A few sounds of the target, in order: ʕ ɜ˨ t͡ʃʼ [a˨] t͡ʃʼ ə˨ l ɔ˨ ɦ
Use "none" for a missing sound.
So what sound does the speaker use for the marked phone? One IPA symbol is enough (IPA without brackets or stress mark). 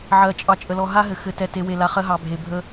ɑ˨